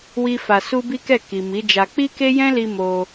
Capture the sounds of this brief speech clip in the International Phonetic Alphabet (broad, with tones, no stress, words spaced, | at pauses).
wi˦fa˧ su˦bi˦kɛ˦˨ ki˨ mi˨˦d͡ʒa˧ k͡pi˦ke˦jɛ̃˦li˧ mo˧